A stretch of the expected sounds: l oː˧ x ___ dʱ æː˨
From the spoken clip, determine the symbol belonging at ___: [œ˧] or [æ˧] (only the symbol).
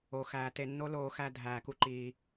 æ˧